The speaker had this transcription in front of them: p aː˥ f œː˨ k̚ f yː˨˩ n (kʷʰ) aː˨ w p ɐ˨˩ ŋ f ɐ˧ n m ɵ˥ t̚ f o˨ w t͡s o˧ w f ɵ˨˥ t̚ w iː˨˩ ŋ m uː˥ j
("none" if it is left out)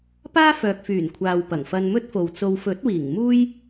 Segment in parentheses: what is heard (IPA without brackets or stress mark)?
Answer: kʷʰ